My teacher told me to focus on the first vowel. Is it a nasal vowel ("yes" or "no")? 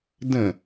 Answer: yes